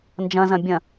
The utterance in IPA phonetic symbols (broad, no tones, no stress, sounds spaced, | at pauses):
n d͡ʒ ɐ̃ z ɐ̃ bʲ ɐ̃